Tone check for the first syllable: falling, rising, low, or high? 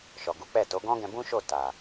low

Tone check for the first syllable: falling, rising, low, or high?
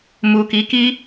low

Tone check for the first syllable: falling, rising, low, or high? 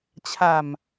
low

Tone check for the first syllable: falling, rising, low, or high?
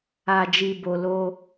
low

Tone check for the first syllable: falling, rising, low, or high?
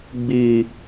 low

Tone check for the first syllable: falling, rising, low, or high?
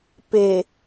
low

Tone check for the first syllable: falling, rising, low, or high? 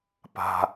low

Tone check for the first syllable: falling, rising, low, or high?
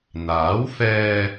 rising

